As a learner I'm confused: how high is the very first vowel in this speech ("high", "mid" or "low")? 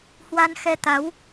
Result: low